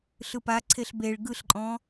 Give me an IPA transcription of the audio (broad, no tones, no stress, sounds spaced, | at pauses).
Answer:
ɬ ɯ p a ǀʰ e ɬ b e ɭ ɡ ɯ ɬ ǃʼ ɔ̃